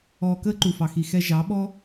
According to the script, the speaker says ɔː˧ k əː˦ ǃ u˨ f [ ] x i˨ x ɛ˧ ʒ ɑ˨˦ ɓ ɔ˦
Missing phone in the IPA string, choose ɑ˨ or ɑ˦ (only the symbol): ɑ˨